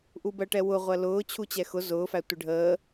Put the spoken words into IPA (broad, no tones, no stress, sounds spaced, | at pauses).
ʔ u b ɜ ʈ ɛ w ʊ ʁʷ ɜ l ʊː t͡ɕʰ u t͡ɕ ɛ x ʊ z ʊː f æ tʷ ɪ ɖʱ əː